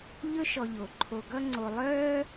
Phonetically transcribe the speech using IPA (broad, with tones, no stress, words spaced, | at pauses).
ʎɵ˥ʃɔ˨ʎo˩ǃʰo˨ ɡʌ˦ŋ͡ǀo˨ lˠœː˦